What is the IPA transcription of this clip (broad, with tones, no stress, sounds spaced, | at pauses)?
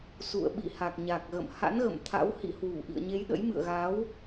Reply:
s ṵ˧˨ ə̯ ɓ ḭ˧˨ h a˨˩ k̚ ɲ a˨˩ k̚ ɣ ə̰˧˨ m h a̰˧˥ n ɣ ə̰˧˨ m t̪ʰ a̰˧˥ w h ḭ˧˨ h w u˧˩ ʔ ḭ˧˨ ə̯ ɲ e˨˦ j ɗ ə̰˧˥ j m ɨ̰˧˨ ə̯ ɣ aː˨˦ w